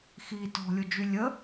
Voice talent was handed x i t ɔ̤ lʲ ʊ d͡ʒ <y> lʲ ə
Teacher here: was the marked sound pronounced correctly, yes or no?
yes